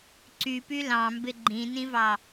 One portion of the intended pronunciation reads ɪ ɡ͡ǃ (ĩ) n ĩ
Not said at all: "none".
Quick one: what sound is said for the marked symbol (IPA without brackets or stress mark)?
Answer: ĩ